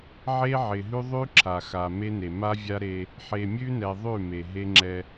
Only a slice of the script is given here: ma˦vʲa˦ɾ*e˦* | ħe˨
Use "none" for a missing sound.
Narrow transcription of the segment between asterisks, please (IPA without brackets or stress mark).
e˦